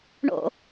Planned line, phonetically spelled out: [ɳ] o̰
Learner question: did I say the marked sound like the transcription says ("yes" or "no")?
yes